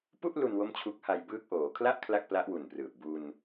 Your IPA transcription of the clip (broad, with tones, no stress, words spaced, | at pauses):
pu˥˩ʔ lu˧n wo˥˩mt͡ɕʰu˦˥k̚ha˧jbɯː˥˩k̚ ʔoː˩˦kʰla˥˩ʔ kʰla˥˩k̚pla˦˥ʔwu˨˩nprɯː˨˩p̚ bu˧n